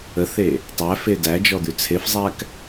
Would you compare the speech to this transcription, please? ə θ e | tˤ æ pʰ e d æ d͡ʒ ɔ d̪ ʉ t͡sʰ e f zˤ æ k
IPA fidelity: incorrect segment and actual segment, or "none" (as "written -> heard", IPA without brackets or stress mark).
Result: pʰ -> f